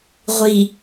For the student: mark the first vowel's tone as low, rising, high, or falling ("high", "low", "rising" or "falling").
low